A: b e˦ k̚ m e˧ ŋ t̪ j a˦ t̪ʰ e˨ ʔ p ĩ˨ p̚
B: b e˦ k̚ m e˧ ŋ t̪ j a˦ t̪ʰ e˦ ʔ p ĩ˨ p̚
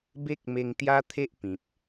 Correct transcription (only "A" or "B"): B